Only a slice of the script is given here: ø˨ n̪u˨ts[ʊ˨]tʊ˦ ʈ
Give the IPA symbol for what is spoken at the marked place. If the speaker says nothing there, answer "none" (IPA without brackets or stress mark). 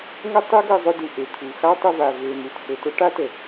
ʊ˨